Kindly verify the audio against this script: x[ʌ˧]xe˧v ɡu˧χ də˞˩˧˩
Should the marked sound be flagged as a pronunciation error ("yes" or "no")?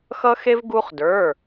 no